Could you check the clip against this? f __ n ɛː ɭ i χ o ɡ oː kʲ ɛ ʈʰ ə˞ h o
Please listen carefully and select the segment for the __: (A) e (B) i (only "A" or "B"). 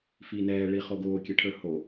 B